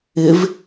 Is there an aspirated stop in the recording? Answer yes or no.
no